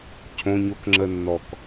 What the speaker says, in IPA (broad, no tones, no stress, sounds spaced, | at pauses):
cʰ õ ɲ o k ŋ͡ǁ ə nː ɔ k